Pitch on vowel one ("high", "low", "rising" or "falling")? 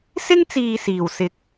high